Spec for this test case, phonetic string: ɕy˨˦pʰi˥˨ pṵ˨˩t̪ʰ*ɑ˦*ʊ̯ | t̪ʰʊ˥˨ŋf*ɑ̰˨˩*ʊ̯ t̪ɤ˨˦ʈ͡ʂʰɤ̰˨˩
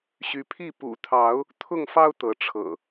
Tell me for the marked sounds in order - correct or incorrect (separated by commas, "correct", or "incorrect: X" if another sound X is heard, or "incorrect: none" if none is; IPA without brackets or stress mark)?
incorrect: ɑ˨˦, incorrect: ɑ˦